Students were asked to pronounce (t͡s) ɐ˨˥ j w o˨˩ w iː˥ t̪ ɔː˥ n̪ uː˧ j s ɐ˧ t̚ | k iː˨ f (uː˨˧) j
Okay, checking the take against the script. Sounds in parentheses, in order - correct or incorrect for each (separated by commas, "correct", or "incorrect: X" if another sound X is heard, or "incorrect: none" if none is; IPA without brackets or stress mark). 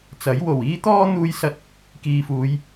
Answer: correct, correct